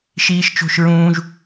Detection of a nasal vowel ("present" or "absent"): present